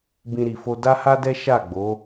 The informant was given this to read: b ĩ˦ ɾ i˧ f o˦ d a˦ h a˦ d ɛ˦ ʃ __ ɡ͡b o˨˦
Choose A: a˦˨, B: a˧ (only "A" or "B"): A